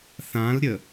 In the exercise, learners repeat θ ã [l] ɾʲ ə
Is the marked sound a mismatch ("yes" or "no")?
no